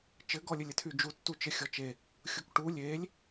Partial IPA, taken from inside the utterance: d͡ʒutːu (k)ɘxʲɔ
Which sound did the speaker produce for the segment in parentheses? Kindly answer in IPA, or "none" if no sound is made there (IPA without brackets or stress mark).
t͡ʃ